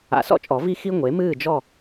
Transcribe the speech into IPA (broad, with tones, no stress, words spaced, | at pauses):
a̰˨˩˦sɔ̰˥˨t͡ʃʼɔ˨˩˦ vi˥xi˥ ŋʷe˩˥mɨː˥˨d͡ʒɔ˥˨